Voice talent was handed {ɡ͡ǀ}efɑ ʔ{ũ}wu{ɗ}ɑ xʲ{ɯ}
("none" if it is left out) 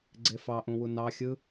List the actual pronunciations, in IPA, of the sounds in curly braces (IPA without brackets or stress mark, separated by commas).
ɡ͡ǀ, ũ, n, ɯ